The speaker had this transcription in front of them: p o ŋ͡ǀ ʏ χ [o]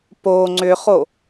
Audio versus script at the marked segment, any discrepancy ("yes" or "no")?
no